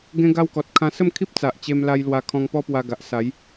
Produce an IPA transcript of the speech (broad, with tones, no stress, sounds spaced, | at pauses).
ɡ ẽ˦ ɡ a˦ w k ɔ˨ t̚ kʰ ã˧ s ə˥˧ m kʰ i˦ p̚ t͡s a˨ ʔ t͡ɕ e˧ m l a˧ j l w a˧ kʰ ɔ̃˧ ŋ p ɔ˦ p w a˧ ɡ a˨ ʔ s a˨˦ j